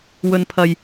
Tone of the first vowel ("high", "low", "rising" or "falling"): low